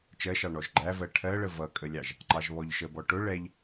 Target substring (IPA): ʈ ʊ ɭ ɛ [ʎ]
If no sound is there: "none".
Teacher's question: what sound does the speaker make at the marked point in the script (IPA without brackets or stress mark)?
ʎ